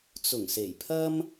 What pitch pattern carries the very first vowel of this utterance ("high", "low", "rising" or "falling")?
low